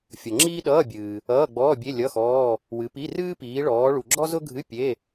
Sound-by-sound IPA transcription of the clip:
fʲ ʌ˨ ŋ͡ǁ iː˥ ɗ ʌː˧˥˧ bʲ ɨː˨ | ʌː˧˥˧ ɡ͡b ɔː˧˥˧ bʲ e˧˥˧ lʲ ʌ˧˥˧ x ɔː˧˥˧ | w ɨ˨˦ p i˧˥˧ r ɨː˥ p iː˨˦ ɭ ɔː˨˦ ɭ u˨ ɡ͡ǁ ɔ˥ z ʊ˥ ɡʱ ɨ˧˥˧ pʲ e˧˥˧

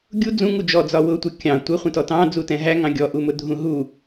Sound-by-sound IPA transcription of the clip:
ɡʲ u d͡z ũ ŋ u d͡ʒ ɔ d͡z ɒ w ʊ tʷ ʌ kʲ ɑ̃ tʷ ə χʷ ɛ̃ t ɔ t ɑ̃ d͡z u t ɛ̃ ɦ æ ŋ ɑ̃ ɡʲ ɔ ʔ u m ʊ dʱ ũ ɦ u

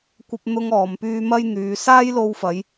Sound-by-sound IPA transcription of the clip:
kʷ ɐ˥ p̚ n̪ ʊ˥ ŋ ɔː˨˧ m p yː˥ m ɐ˥ j n̪ yː˨˧ s aː˥ j l o˧ w f ɐ˨˧ j

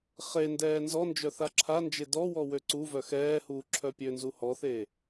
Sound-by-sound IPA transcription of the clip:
χ e n d ɛː n z ɔ n d͡ʒ œ θ a ǁʰ a n d͡ʒ e d ɔ w ɔ w ø ǀ u v œ x ɛː h uː ǁʰ œ pʲ ø n z u h ɔ θ e

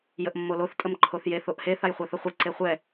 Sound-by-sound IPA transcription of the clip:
j ə ʔ mː o l o θ tʼ ə m ǃʰ o θ j e θ o ʔ h e θ a j χʷ a θ ə χʷ e ǀ e χʷ ɛ

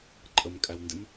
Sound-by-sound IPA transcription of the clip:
ǃʼ ə m kʼ æ w n d ɪ m

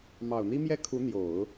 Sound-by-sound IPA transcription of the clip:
m ɑ˨˩ ʊ̯ n̪ i˥ m j ɛ˥˩ kʰ u˧˥ n̪ j o˨˩˦ ʊ̯

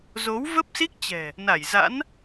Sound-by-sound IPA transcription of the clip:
z o˨˦ w v ə˦˥ p̚ s i˦˥ k̚ t͡ɕ ɛ̤˨˩ | n a˧˩ j z a̰˧˥ n

